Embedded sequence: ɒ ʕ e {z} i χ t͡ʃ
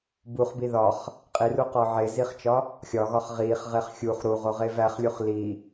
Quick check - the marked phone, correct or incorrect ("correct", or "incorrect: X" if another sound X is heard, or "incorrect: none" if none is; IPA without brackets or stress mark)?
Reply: correct